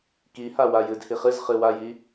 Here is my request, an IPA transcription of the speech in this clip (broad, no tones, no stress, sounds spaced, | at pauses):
k i h a w a j ɨ d h i χ ɨ z χ ɨ w a j i